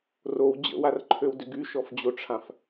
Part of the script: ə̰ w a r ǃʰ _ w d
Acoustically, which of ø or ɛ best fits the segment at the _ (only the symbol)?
ø